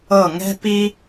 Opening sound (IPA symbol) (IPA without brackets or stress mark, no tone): ɤ